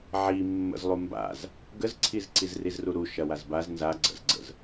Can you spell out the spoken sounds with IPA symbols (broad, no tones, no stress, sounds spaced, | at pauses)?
ʕ i mː ə̰ z lˠ u m b a̰ z | ɡ ə z ǀʰ i z ǀ i z r i z r u ɾ u ʃ ɐ w a z b a z n z a ɡ͡ǀ ə̰ z ɡ͡ǀ ə̰ z